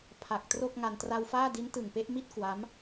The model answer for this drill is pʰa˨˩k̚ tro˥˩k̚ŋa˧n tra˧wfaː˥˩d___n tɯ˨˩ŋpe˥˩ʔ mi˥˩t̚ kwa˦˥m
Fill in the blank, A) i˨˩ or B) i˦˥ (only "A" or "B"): B